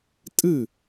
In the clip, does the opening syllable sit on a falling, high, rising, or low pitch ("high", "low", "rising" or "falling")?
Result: falling